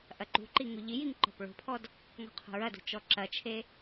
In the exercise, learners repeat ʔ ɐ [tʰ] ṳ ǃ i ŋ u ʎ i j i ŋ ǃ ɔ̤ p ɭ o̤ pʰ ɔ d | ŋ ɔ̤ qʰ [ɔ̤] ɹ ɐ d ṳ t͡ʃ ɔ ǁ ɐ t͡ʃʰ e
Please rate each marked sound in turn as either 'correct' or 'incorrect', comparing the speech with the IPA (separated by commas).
incorrect, incorrect